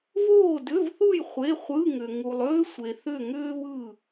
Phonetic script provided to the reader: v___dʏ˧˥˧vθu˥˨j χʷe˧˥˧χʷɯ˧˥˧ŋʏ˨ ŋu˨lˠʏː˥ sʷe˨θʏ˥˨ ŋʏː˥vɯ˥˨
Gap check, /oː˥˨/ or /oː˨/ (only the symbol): oː˥˨